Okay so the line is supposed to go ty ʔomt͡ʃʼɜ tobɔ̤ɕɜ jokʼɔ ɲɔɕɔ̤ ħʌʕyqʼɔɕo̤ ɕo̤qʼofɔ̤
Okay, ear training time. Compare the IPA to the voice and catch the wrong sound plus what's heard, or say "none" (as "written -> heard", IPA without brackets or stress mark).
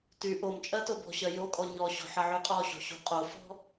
none